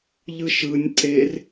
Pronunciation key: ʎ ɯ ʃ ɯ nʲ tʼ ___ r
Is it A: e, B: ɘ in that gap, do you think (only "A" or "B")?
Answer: A